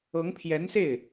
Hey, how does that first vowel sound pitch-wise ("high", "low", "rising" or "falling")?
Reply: rising